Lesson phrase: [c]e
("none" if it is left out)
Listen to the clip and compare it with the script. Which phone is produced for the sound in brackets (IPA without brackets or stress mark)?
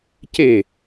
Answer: c